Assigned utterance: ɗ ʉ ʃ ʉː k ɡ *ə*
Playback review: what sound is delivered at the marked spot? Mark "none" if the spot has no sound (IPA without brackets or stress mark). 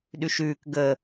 ə